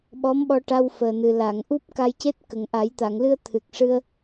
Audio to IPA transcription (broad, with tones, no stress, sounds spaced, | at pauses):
ɓ ɔ˧˥ m ɓ ɔ˧ ʈ a˧ w f əː˨˩ n ɨ˨˩ l a˨˩˨ ŋ ʔ u˦˥ p̚ k a˧ j c e˦˥ t̚ k ə˨˩ ŋ ʔ a˨˩˦ j t̪ a˨˩˨ ŋ l ɨ˧ ə̯ t̪ʰ ɨ˨˩ k̚ ʂ ɨ˧ ə̯